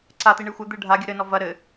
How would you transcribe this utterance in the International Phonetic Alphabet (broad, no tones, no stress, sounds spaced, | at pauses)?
ǀ a t̪ i ɳ ɨ xʷ ɘ d̪ ɨ ɖʱ a ɡʲ ɨ ɾ ɘ n ɔ v ɐ ɾ ɘ